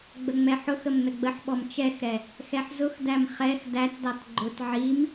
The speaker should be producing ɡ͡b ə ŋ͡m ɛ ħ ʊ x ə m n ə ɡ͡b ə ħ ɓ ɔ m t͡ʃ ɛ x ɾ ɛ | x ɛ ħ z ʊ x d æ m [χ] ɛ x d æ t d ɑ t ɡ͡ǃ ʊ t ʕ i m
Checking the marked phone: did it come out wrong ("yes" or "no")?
no